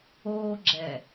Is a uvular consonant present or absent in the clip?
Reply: absent